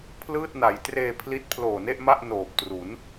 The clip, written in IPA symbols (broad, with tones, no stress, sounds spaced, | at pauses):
pʰ l ɯː˥˩ t̚ n a˩˦ j t r eː˧ pʰ l i˦˥ t̚ pʰ l oː˨˩ n e˥˩ ʔ m a˥˩ ʔ n oː˨˩ p̚ t r u˩˦ n